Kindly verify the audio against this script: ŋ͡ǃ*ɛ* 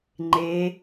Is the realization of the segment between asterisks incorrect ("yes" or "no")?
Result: yes